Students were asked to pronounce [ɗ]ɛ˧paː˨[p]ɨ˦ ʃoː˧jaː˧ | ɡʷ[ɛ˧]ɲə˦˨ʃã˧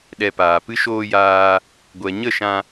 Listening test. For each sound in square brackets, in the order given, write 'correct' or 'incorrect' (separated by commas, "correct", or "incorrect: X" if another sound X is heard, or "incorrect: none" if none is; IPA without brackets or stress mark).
correct, correct, incorrect: ɛ˨